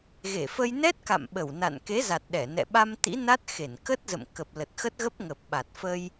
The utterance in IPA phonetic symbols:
ɣe˧˩fə˧j nɛ˦˥t̚ka̰˧˨m ɓə˧˩wna̰˧˨n ke˨˦za˨˩t̚ ɗɛ˧˩nɛ̰˧˨ ɓa˧mt̪ḭ˧˥na˦˥t̚ xe˧˩nkə˦˥t̚zə̰˧˨m kə˨˩p̚lə˨˩t̚xə˦˥t̚ɣə˦˥p̚ ŋə˨˩p̚ɓa˨˩t̚fə˧j

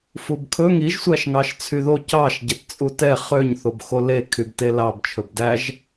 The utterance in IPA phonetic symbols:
fubkʰɵ ŋiʒ sʷæʃŋɑʃt͡sʰyðo cɑʃ ɟɛtt͡sʼutɛ χøɲ θobxole kʰybtelɑb t͡ʃʰɵbdæʒ

